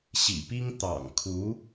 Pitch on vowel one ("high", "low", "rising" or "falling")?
low